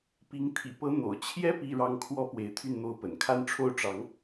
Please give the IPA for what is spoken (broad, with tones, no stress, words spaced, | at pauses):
pi˧˥ŋ t̪ʰḭ˨˩pɤ˧˥ n̪o̰˨˩ʊ̯ t͡ɕʰjɛ˥ pi˥˧ɻɑ˥˩ŋkʰwɔ˥ pwe˧˥ɪ̯t̪ʰy˥˩nn̪o˥ʊ̯pə̰˨˩n kʰa˥˧nʈ͡ʂʰo˥˩ʊ̯ʈ͡ʂɑ˧˥ŋ